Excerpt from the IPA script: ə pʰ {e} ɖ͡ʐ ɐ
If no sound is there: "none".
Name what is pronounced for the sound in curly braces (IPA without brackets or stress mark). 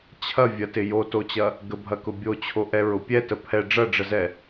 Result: ɛ